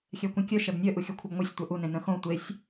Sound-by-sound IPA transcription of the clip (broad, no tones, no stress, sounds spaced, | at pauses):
xʲ ɛ kʷ ĩ kʲ œ ʃ ɛ b nʲ œ ʔ u xʲ œ kʷʰ i b ŋʷ i sʲ tʷ œ ʔ u n ẽ n ə̃ x õ tʷ e sʲ